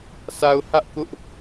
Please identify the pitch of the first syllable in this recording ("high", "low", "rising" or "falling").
low